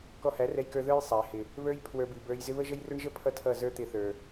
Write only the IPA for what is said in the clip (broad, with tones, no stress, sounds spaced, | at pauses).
k ɔ˧ h æ˨˦ r ɛ˧ j k ə˞˧ ð ə˞˦ j sˤ æ˨ h ɪ˨ | β ə˞˦ j pʰ w ə˞˧ b i˨ b ə˞˧ j z ɪ˦ β ə˦ ʒ ə˦ j r ʊ˦ ɳ ʒ ə˦ pʰ ʌ˧ tʰ ʌ˦˨ z ə˞˦ t̪ ɪ˧ θ ə˞˨